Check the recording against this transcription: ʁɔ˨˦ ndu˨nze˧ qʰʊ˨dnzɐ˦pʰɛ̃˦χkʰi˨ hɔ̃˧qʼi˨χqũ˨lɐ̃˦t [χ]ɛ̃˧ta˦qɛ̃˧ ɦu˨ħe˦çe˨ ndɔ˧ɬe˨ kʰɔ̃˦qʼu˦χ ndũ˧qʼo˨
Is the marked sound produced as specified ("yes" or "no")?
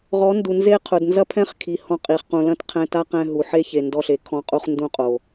no